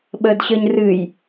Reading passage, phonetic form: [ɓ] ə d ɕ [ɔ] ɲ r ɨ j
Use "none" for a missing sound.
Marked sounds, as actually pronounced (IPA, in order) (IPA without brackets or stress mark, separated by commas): ɓ, ə